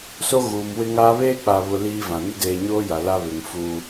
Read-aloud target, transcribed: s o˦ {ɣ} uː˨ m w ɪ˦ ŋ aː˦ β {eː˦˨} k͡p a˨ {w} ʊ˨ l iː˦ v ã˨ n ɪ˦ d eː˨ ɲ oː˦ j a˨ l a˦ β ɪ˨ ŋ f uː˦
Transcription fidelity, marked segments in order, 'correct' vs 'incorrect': correct, incorrect: eː˦, incorrect: β

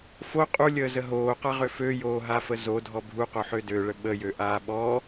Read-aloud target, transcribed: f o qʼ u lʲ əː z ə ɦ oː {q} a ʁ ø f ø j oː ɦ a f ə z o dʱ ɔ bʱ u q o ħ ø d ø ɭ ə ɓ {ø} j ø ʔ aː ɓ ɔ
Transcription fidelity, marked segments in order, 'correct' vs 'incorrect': correct, incorrect: ə

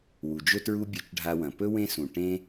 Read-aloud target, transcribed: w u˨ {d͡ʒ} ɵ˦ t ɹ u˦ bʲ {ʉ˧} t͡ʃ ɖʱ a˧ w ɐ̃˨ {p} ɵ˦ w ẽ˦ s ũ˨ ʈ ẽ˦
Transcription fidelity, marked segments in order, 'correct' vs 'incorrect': correct, correct, correct

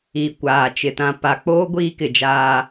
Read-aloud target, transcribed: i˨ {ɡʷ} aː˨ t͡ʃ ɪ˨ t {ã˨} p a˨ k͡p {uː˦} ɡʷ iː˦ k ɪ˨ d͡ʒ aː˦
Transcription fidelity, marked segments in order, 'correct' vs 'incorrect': incorrect: kʷ, correct, incorrect: oː˦

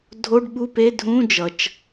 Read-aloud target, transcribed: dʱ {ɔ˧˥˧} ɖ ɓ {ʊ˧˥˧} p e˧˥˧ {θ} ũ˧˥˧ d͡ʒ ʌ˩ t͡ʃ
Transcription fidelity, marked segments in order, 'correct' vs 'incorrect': incorrect: o˧˥˧, incorrect: u˧˥˧, incorrect: dʱ

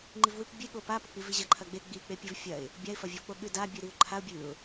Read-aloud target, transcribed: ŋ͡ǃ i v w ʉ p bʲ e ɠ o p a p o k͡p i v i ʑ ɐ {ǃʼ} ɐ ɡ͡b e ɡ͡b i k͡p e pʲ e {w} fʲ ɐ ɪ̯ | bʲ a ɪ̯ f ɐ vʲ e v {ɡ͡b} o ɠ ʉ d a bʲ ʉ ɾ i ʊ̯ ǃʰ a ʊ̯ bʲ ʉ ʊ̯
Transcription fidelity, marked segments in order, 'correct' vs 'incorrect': incorrect: ǃʰ, incorrect: v, incorrect: k͡p

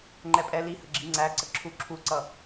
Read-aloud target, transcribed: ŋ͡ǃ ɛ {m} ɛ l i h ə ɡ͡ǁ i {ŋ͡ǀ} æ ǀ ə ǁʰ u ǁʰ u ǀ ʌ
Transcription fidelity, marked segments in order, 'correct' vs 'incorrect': incorrect: pʼ, correct

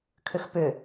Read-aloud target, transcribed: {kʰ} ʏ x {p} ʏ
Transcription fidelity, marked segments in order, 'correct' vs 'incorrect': correct, correct

